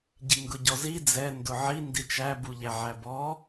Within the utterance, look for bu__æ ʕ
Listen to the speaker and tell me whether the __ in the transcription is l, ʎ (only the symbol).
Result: ʎ